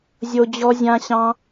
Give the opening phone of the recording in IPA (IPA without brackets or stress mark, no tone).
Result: zʲ